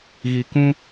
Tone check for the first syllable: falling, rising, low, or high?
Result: low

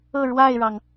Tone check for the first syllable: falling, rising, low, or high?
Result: falling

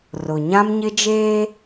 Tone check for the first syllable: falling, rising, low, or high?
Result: low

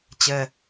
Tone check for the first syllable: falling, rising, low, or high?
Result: high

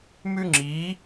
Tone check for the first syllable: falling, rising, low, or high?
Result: high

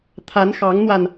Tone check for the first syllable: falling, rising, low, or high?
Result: rising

